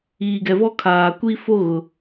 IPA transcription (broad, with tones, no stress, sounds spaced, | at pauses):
iː˨ ɡ ɛ˨ v ɔ˦ kʰ aː˨ kʷ i˦ f o˦ ɣ ʊ˨